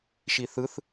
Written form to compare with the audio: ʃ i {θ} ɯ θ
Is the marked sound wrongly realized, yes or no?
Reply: no